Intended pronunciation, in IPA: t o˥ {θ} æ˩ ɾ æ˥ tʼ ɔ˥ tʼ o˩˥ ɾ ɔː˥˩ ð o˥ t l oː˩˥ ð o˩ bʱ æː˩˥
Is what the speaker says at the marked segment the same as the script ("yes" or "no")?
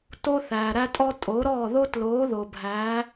yes